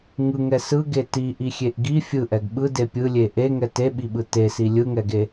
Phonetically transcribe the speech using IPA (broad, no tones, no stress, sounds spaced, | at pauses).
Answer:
ŋ ɯ ŋ ɛ s ɯ ɡ e t i ʔ i xʲ e ʔ ɡ i fʲ ɯ ʔ ɛ ɡ ɓ ɯ d e pʲ ɯ lʲ e ʔ e ŋ ɛ t e ɓ i ɓ ɯ t e s i lʲ ɯ ŋ ɛ ɡ e